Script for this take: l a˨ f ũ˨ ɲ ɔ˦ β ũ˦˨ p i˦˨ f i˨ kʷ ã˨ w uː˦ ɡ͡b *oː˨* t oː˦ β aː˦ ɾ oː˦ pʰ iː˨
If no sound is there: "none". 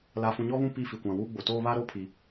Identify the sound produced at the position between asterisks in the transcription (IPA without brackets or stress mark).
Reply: o˨